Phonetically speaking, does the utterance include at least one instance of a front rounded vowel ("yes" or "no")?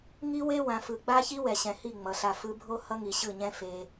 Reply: no